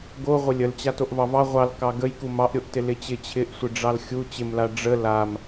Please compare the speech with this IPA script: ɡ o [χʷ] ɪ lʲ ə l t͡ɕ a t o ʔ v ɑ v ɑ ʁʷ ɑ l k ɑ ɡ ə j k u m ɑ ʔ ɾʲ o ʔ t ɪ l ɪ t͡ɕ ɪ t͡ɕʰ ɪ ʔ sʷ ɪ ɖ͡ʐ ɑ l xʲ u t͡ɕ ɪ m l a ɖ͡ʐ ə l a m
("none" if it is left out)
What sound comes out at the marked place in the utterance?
ʁʷ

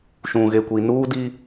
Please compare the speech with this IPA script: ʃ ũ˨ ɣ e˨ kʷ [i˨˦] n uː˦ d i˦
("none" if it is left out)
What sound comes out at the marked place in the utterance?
i˨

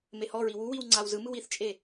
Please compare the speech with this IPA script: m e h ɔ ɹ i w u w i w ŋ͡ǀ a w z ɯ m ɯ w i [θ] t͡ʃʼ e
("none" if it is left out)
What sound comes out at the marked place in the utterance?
θ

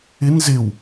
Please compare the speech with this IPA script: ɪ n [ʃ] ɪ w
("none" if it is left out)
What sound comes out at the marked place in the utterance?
z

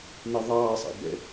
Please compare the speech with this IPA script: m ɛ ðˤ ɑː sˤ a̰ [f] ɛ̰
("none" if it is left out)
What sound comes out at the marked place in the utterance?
b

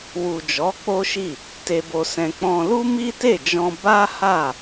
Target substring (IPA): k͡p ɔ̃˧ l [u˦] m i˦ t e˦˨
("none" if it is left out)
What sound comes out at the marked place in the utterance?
u˦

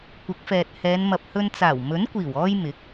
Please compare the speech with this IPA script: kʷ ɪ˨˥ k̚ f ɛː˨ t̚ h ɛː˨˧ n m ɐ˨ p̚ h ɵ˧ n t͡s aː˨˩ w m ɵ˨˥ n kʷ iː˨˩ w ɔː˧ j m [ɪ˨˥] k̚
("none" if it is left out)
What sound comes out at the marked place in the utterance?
ɪ˨˥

